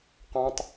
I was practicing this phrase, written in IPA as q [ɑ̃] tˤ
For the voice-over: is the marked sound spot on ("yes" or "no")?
yes